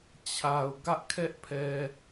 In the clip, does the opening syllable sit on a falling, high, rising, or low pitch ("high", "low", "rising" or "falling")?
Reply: low